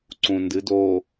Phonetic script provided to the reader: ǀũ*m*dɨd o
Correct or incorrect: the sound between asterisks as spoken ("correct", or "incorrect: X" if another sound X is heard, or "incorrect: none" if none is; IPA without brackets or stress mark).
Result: incorrect: n